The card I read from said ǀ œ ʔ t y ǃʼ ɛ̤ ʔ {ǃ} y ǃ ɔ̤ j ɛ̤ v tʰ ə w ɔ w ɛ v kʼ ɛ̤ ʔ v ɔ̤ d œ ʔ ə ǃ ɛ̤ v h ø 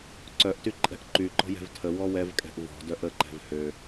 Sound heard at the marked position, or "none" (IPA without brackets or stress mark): ǃ